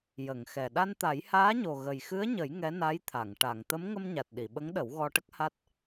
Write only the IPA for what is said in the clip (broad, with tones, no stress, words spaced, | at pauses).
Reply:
jə˨˩˨ŋxɛ˨˩ ɗa˧nt̪a˨˩˦jhaː˧˥ɲo˨˩ ɣə˨˩jxɨ˧˥ə̯ɲə˨˩˦j ŋɛ˧˥na˧˥jt̪ʰa˨˩˨ŋ ʈa˨˩˨ŋ t̪ə˧˥mŋə˧mɲa˨˩t̚ ɗi˨˩˨ɓə˧˥ŋɗə˨˩˦w ɣɔ˧ʈə˦˥k̚ha˦˥t̚